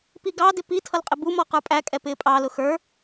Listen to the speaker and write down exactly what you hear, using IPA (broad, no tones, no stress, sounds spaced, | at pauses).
p i ɡ ɑ d ɪ p i tʰ ʌ l qʼ ɪ b u m ɔ q ə˞ pʼ æ kʼ ɛ p ɪː pʼ ɑ l ʊ x ə˞